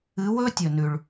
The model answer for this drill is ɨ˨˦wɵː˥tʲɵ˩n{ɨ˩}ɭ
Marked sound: incorrect: ʉ˩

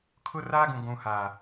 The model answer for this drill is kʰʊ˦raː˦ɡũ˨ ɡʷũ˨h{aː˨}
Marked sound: correct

